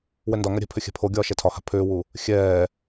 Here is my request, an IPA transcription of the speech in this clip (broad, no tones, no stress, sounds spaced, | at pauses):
w ɛ n d ɒ ŋ a ɾʲ ɛ̤ pʰ ʏ xʲ ɛ̤ pʰ o ɡʲ ɒː ʃ ɛ tʰ ɒ h a̤ pʰ ʏː w u | xʲ ɛː